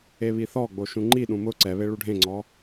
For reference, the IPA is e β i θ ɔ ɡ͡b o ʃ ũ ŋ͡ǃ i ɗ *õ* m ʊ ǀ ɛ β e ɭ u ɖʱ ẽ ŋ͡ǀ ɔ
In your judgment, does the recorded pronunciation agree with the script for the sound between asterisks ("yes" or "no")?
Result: no